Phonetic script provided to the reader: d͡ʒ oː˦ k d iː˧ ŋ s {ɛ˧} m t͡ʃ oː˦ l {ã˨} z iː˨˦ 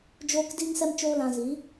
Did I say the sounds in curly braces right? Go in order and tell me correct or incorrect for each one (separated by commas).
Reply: correct, incorrect